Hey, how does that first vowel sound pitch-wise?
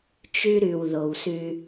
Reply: high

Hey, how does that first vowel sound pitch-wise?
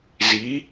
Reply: rising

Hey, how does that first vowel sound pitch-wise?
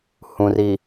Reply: low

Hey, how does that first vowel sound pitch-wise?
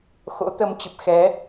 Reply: rising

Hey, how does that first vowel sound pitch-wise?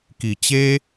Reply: low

